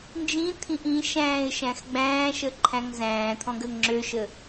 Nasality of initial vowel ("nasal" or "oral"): nasal